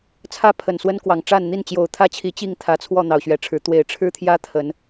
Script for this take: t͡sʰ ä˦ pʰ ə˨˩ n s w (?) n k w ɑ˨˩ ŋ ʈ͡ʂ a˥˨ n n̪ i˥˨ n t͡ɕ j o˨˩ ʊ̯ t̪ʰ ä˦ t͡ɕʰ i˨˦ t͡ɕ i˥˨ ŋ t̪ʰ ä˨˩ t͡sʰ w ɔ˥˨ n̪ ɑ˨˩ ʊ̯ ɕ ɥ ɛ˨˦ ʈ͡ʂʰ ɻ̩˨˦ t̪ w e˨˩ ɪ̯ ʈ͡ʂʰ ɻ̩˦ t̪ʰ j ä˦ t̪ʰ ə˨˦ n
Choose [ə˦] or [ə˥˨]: ə˦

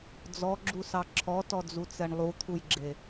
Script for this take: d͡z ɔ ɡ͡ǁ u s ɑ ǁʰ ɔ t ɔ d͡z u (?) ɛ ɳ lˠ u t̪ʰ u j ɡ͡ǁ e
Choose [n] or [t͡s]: t͡s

